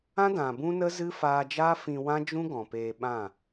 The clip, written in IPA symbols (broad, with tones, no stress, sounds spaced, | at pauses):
ã˦ d ã˨ b ũ˦ n ə˦ z ɨ˦ f aː˧ d͡ʒ aː˦ f ĩ˧ w ã˦ d͡ʒ ũ˦ ɡ ɔ̃˨ p eː˧ ɓ ã˦˨